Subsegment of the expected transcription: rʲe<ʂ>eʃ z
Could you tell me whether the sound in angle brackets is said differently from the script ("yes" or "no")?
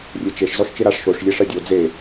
yes